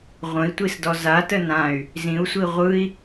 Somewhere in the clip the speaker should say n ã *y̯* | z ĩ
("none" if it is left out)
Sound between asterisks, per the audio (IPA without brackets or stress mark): y̯